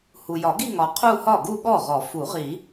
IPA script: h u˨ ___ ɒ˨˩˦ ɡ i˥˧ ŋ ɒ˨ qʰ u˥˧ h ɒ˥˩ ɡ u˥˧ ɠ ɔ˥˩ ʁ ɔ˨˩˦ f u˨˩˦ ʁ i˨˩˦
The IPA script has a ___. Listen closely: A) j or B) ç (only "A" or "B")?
A